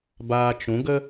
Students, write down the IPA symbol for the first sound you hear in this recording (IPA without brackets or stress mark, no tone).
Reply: b